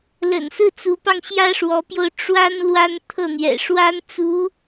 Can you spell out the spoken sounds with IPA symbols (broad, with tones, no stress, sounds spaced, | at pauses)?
l ə̰˨˩ n s ɹ̩˥˩ t͡s u˧˥ p ɑ˧ ŋ ɕ j ä˥ ʂ w ɔ˧˥ p j o˧ ʊ̯ ʈ͡ʂ w a˥ n l w a˥ n t̪ʰ ɤ˥˩ n̪ ɥ ɛ̰˨˩ ʂ w a˥ n t͡s u˧˥